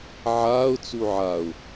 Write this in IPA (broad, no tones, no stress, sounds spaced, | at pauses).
ʕ aː ʊ̯ t͡s u ʕ a ʊ̯